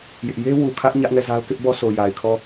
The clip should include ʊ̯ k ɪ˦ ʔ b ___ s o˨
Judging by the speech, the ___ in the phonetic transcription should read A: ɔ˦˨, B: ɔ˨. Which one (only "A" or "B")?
A